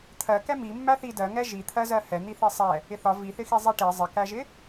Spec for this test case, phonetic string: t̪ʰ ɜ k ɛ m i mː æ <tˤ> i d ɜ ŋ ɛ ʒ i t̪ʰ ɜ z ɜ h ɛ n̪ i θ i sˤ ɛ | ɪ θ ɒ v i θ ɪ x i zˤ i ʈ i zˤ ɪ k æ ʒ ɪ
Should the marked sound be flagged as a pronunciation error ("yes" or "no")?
yes